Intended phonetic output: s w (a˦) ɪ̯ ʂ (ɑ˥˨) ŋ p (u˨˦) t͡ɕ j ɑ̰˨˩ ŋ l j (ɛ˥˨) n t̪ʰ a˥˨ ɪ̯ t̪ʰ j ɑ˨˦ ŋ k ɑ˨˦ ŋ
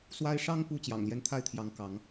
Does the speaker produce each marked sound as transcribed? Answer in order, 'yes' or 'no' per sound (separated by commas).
yes, no, no, no